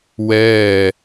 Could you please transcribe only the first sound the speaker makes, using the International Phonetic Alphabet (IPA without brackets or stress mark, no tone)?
w